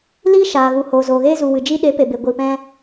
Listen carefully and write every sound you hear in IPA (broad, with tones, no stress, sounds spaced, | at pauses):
l iː˦ ʃ aː˨ ɣ u˨ h oː˨ z oː˨ ɣ eː˧ z u˨ w ɨ˨ d͡ʒ i˧ ɗ e˨˦ p e˨ b e˨ ɡʷ iː˨ p ɛ̃˧